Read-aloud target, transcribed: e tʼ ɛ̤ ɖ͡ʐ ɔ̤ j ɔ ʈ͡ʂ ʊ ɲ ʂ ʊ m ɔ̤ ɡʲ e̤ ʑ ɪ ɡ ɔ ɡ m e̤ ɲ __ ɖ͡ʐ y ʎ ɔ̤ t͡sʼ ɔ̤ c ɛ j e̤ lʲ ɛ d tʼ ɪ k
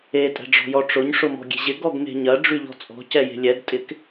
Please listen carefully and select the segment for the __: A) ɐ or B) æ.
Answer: A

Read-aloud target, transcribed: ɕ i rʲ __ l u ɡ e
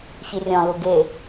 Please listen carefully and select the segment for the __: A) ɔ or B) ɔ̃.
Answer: B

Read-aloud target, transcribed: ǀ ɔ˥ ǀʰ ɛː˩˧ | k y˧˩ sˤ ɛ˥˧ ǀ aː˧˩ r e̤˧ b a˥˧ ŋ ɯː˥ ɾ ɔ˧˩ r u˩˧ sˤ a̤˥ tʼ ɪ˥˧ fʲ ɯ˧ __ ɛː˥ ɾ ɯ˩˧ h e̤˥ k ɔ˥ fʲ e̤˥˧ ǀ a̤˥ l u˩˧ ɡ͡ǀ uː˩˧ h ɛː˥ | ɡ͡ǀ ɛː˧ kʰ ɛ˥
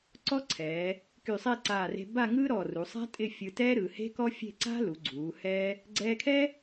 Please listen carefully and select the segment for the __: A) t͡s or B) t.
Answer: B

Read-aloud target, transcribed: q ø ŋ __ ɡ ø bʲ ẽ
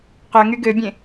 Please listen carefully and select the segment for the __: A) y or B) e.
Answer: A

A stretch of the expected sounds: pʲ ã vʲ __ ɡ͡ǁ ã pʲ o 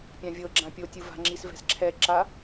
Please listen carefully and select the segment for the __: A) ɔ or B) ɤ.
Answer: B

